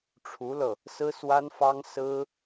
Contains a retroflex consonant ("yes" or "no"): yes